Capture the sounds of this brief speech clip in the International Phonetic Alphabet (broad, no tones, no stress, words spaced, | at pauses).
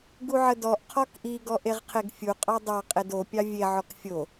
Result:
ɡuʕədɔʔ qʰɔkʔi ɡɔʔeʁqʰeɡfʲu qʼɑdˤɑ qʼedo pʲɑvʲe ʕɔkfʲo